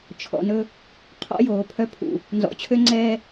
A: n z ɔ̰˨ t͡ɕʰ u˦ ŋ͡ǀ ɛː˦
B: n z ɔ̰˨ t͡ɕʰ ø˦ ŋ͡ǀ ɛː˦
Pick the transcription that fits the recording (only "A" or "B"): B